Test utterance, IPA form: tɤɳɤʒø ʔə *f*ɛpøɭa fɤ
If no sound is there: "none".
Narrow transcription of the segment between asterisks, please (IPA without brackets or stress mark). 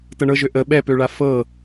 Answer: ɓ